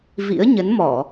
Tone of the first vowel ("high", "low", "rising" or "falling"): rising